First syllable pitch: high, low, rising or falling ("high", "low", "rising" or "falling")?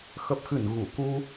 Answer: low